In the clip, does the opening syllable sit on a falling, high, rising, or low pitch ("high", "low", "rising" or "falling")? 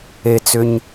low